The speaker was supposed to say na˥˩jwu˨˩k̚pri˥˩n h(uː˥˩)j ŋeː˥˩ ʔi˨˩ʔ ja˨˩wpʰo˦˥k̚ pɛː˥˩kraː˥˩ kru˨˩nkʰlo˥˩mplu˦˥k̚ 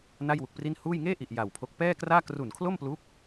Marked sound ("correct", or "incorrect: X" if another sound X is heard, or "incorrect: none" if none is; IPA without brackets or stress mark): correct